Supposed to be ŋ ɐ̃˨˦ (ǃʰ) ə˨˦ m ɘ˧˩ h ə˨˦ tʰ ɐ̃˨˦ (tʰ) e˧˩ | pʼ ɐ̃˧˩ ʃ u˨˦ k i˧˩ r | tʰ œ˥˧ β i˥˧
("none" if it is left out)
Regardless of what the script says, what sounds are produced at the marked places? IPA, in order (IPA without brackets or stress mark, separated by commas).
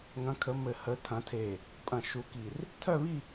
kʰ, tʰ